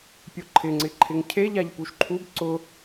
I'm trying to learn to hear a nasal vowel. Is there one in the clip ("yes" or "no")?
no